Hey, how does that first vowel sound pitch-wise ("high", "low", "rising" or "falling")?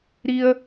high